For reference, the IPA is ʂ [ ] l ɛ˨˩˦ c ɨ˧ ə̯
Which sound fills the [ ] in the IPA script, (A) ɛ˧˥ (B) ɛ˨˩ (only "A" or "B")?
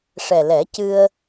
B